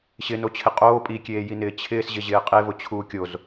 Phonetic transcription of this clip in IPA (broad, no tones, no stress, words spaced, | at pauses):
ɕɪnot͡ɕʰɪ qʼoː pʼikʲeːjinɪː t͡ɕʰɪːsʑɪʑɪː qʼevʊt͡ɕʰuː kʲoz